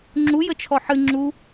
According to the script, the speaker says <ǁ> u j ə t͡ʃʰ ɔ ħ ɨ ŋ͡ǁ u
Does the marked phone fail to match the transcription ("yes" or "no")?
yes